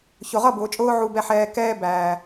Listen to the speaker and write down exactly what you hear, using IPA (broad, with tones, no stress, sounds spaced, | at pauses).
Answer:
ç ʊ˨ ʁ ʌ˦˨ b ʊː˨ t͡ʃʼ ʊː˧ ʕ u˨ b ɛ˨ ħ ɛː˨ k ɛː˧ b æː˨